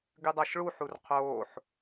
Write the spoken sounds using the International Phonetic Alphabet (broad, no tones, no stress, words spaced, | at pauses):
ɡʉdˤaʃɭuħur qʰoːħ